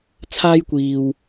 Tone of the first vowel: high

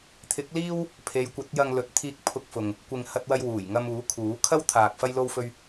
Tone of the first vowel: rising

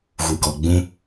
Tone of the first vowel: low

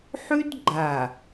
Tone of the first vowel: high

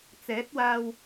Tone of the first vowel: rising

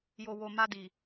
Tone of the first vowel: low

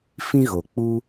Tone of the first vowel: high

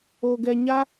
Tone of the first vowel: low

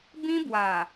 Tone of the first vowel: high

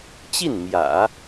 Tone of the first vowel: falling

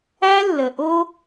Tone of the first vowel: high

